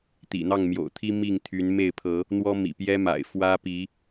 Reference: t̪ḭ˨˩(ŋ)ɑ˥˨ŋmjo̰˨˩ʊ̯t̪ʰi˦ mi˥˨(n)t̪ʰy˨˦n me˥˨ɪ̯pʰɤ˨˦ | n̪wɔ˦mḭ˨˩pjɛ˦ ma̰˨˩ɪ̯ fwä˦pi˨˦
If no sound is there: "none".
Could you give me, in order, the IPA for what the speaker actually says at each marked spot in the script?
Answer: n̪, ŋ

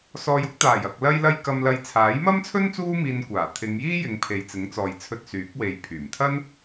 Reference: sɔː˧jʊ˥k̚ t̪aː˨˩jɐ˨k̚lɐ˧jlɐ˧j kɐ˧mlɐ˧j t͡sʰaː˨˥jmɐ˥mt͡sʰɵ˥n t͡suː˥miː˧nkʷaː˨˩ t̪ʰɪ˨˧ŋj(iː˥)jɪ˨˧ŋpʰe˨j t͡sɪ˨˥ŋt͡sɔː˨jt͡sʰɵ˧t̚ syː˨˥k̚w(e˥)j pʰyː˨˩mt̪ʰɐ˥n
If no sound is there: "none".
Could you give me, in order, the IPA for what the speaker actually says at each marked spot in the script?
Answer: iː˥, e˨˧

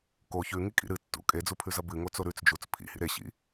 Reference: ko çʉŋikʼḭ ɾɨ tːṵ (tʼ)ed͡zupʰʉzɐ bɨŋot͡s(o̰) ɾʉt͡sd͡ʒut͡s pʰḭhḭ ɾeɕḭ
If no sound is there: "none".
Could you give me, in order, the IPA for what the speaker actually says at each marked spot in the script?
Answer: kʼ, o

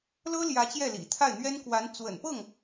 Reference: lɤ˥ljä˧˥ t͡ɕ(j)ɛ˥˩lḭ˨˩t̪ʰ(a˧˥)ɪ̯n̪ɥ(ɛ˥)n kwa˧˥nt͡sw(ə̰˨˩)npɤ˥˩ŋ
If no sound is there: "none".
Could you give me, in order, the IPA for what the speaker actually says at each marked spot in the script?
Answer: j, a˥˩, ɛ˥, ə̰˨˩

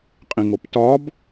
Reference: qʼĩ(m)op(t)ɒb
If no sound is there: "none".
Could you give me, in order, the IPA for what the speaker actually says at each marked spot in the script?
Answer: ŋ, t

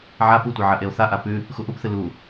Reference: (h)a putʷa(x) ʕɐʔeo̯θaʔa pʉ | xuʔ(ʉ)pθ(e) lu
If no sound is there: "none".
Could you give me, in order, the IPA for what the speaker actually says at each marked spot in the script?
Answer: ʕ, none, u, ɨ

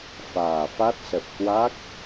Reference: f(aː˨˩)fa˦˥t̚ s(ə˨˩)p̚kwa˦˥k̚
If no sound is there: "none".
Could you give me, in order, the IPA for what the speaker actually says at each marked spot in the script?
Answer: aː˨˩, ə˨˩

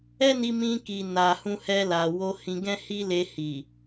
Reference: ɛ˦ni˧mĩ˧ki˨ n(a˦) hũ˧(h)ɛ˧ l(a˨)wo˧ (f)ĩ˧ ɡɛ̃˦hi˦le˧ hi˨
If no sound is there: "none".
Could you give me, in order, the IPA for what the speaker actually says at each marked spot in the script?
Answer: a˨, h, a˨, h

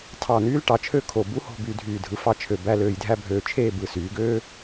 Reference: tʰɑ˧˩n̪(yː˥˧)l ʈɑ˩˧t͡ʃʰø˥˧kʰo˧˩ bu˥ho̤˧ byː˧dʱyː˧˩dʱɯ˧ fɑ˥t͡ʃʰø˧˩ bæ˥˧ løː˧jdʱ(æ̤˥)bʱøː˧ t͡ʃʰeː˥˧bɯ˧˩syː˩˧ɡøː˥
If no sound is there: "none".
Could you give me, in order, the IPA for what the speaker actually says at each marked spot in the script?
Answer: yː˥, æ˥

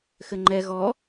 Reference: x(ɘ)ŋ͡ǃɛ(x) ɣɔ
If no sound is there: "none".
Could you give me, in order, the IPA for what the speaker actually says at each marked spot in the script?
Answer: ɘ, none

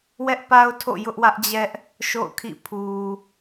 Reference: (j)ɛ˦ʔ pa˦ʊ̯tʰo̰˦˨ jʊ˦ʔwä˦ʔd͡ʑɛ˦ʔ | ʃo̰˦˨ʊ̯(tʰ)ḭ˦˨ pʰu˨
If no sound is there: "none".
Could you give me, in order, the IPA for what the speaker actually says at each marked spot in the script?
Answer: w, kʰ

